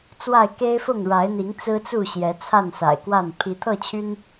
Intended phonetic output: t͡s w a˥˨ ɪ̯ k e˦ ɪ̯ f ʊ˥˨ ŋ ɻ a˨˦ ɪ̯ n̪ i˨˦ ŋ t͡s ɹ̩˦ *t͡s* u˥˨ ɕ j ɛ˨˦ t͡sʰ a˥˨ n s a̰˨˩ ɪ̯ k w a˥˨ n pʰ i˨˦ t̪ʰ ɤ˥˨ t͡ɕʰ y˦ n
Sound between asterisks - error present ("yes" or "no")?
no